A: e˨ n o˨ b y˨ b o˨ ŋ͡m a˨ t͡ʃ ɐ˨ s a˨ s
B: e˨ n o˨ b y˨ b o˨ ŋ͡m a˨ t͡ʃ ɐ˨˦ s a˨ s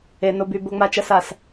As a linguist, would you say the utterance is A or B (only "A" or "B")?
A